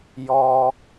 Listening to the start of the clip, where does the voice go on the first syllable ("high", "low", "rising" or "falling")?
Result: high